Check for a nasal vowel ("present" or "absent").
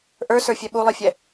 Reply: absent